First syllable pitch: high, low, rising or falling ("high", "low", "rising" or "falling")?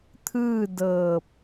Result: falling